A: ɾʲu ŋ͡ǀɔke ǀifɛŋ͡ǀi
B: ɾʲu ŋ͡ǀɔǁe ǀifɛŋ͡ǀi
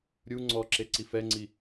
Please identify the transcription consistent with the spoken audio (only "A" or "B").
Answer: B